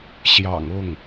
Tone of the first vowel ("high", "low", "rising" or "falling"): low